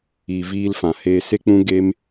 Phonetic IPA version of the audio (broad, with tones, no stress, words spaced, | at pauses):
iː˨viː˧lfã˨heː˧ se˦k͡pũ˦ɡeː˦m